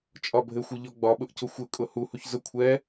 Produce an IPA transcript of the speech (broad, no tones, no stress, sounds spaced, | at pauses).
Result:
t͡ʃʼ ɒ bʱ ɘ xʷ ʊ ʎ ɔ ɡ͡b ɒ ɓ ʊ ʔ c ʊ xʷ ɘ kʼ ʊ h u h u ç z ʊ kʷʰ ɛ